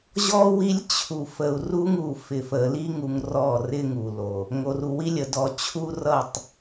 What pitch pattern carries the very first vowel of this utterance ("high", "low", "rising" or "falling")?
high